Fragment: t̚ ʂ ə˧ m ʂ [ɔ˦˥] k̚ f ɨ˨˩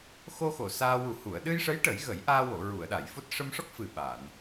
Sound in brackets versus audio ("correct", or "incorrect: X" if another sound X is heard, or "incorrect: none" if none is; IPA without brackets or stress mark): correct